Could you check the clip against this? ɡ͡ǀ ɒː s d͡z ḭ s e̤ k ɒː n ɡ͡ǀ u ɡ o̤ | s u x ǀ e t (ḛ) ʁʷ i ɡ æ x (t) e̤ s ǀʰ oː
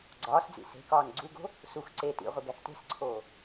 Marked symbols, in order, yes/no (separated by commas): no, yes